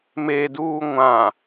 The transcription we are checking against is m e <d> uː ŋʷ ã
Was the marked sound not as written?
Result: no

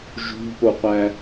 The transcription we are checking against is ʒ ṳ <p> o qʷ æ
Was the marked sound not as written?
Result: no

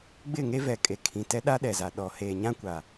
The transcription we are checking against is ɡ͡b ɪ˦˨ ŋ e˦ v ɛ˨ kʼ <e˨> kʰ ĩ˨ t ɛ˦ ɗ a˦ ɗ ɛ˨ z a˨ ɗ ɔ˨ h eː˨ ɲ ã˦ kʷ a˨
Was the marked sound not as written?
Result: no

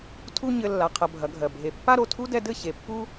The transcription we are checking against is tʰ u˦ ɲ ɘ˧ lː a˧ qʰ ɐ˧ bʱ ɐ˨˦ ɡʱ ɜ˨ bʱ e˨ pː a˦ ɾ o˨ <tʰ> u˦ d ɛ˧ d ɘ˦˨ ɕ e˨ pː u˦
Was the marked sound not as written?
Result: no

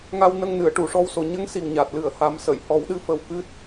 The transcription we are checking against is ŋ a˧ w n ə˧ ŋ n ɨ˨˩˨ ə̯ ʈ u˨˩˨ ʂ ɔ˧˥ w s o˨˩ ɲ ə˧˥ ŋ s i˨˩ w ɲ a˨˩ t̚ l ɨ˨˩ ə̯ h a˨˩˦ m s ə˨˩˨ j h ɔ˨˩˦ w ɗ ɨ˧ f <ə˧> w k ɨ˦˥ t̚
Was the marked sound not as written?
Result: no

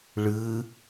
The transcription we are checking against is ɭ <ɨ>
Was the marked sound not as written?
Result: no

